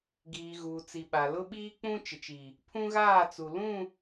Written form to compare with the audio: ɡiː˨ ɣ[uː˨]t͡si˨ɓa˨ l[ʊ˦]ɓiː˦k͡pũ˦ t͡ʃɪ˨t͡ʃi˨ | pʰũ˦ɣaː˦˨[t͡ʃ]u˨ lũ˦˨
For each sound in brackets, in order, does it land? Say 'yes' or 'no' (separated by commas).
yes, yes, no